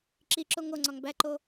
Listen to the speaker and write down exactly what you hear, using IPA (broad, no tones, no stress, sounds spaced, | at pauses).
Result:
ǁ i ǁ o ŋ o ŋ͡ǀ ɒ ŋ b æ ǃ o